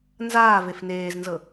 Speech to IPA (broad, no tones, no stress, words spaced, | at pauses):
nzaːvef neːznzɤ